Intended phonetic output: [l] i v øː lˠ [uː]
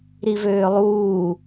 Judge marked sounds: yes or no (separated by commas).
no, yes